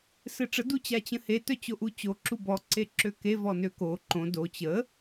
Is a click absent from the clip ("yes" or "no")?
no